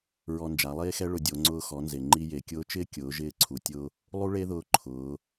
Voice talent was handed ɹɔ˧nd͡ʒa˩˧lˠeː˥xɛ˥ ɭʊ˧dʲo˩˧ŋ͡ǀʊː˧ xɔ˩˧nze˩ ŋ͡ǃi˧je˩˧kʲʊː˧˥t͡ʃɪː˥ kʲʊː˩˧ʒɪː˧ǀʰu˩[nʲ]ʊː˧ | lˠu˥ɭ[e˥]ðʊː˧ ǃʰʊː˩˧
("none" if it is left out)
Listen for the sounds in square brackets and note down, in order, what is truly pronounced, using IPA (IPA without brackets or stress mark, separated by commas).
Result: tʲ, e˥